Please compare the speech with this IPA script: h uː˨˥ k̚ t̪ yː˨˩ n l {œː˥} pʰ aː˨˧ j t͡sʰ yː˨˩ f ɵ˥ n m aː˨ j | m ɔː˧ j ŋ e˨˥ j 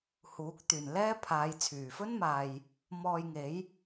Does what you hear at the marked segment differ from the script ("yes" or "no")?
yes